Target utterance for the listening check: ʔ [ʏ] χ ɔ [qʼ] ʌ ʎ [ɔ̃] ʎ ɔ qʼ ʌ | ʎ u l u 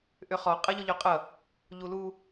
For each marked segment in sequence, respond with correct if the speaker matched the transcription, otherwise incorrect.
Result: correct, correct, incorrect

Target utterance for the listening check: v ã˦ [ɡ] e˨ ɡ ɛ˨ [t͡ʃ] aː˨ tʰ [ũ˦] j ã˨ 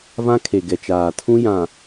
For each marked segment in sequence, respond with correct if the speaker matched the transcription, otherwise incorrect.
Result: incorrect, correct, correct

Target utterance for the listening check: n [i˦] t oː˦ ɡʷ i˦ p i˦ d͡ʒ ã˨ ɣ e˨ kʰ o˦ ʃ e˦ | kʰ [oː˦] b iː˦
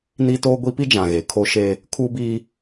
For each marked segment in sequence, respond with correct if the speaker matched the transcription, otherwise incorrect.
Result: correct, incorrect

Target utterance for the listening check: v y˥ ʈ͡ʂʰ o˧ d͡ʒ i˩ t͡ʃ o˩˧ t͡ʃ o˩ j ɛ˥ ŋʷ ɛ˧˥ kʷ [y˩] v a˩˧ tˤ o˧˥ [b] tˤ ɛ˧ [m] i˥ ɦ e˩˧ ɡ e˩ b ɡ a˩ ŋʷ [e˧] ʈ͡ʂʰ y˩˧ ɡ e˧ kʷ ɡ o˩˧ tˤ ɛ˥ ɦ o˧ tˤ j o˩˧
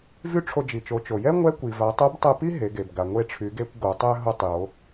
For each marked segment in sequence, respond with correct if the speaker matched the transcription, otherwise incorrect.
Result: incorrect, correct, incorrect, correct

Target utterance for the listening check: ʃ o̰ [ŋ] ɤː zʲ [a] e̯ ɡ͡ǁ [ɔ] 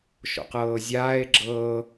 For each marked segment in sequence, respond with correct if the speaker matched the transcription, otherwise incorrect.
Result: incorrect, incorrect, incorrect

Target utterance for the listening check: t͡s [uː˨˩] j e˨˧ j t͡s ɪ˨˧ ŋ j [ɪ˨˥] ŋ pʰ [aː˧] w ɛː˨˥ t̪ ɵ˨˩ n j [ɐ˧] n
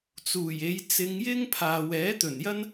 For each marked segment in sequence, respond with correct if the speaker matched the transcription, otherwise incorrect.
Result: correct, incorrect, incorrect, incorrect

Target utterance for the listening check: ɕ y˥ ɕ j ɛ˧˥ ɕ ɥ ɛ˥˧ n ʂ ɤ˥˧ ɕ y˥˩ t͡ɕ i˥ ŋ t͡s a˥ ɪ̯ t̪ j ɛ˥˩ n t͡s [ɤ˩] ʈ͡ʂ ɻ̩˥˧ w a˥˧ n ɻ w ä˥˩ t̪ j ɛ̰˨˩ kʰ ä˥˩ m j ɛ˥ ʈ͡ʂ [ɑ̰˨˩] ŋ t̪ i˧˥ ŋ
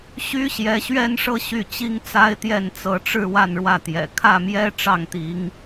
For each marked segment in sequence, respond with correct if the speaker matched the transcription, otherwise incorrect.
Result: incorrect, incorrect

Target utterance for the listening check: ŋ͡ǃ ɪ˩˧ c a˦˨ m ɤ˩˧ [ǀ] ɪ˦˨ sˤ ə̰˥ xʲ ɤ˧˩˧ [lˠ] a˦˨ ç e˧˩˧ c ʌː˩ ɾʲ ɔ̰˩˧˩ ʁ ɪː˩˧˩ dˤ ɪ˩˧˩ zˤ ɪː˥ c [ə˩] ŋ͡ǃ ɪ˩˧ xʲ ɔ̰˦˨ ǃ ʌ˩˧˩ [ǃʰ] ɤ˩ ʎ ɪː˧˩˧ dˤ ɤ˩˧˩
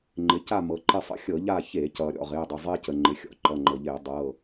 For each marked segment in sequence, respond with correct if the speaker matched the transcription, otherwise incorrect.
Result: incorrect, incorrect, correct, incorrect

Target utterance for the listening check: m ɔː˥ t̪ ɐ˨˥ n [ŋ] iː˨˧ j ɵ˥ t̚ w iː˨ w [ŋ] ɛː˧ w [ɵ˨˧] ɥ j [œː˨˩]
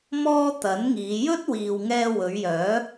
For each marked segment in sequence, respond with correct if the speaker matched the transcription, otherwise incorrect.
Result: correct, correct, correct, incorrect

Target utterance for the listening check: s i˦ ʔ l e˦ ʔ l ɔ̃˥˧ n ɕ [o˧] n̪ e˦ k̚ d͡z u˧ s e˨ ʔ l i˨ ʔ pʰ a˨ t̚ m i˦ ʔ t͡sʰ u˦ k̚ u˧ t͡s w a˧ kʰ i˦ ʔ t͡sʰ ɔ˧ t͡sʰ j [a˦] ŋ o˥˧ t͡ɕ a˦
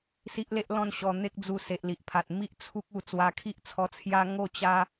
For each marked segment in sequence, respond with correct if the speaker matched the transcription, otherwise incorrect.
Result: incorrect, correct

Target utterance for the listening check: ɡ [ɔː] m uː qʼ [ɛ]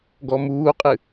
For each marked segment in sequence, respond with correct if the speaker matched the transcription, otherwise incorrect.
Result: incorrect, incorrect

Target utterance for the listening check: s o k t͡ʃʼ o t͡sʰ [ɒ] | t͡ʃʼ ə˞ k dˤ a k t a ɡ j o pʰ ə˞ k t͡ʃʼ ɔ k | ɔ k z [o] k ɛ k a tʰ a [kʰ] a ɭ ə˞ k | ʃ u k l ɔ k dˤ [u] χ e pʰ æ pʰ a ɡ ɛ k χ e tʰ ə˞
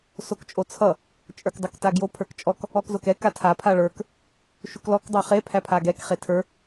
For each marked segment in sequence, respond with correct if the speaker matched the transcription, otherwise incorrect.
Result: incorrect, correct, incorrect, incorrect

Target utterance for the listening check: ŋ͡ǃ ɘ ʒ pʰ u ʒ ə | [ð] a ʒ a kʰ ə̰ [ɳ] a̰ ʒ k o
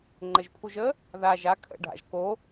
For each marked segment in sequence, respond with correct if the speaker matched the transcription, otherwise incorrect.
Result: correct, incorrect

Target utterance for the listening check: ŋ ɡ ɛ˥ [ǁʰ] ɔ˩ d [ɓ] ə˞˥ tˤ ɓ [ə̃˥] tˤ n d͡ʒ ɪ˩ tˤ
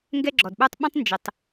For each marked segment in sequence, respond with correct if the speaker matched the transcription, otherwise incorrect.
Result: incorrect, correct, correct

